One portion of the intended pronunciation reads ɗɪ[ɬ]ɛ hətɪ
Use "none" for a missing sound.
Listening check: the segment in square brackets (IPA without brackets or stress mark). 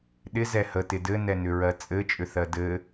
z